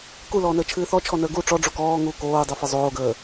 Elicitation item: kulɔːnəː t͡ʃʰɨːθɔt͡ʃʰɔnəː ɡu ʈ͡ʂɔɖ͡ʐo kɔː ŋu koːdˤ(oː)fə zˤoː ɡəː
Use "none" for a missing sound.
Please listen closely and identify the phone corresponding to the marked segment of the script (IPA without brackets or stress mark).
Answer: o